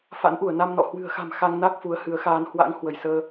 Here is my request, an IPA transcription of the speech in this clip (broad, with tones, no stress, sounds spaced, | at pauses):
f a̰˧˥ n ʔ u˧˩ ə̯ n a˧ m n ɔ̰˧˨ h w ɨ̤˨˩ ə̯ x a̤˨˩ m x a˧ ŋ n a˦˥ k̚ f u˨˦ ə̯ h ɨ˨˦ ə̯ x aː˧ n h w a̰˧˥ ŋ h w ə˧˩ j s əː˧